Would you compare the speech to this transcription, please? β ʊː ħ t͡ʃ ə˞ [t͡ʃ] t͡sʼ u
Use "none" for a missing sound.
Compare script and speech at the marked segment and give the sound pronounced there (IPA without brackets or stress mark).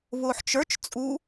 t͡ʃ